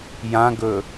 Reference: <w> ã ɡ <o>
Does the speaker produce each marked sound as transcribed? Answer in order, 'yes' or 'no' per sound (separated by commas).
no, no